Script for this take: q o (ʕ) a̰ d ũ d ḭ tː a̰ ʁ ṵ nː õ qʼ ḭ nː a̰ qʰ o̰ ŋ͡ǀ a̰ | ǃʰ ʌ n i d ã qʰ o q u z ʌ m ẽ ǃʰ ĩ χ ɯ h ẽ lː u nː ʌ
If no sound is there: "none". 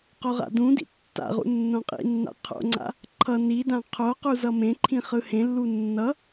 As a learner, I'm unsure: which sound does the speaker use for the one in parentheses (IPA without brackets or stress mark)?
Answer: ʁ